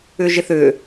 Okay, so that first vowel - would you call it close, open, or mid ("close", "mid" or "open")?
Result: close